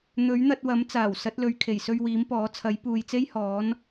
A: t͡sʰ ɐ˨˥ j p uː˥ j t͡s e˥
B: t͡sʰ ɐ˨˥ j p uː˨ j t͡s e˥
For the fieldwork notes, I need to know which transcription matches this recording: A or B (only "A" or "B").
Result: B